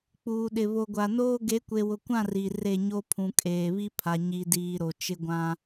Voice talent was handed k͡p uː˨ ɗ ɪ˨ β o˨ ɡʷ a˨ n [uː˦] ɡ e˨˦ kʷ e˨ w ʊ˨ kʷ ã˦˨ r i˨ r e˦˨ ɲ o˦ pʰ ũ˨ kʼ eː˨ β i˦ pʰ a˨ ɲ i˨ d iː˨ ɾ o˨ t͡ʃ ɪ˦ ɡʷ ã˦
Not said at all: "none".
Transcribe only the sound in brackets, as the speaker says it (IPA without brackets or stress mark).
oː˦